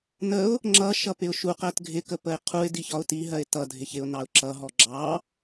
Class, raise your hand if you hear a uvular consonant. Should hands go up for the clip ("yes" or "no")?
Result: yes